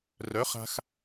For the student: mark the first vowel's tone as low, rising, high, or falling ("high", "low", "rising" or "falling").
rising